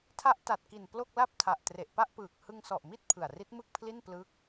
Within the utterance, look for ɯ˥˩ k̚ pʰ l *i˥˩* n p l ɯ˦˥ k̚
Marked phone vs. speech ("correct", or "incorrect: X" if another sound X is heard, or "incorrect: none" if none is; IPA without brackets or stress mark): correct